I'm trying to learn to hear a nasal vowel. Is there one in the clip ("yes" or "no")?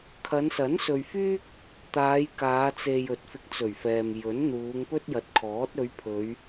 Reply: no